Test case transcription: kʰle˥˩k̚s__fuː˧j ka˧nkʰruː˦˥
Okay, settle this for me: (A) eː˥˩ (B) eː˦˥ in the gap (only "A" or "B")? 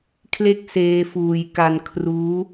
B